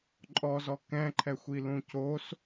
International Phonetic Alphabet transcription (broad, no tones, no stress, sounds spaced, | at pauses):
ǃʼ ɔ z ɔ k ɛ̃ ǃʰ ɛ xʷ i l ũ c o s